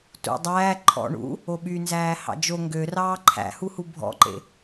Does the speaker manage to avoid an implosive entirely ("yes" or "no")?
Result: no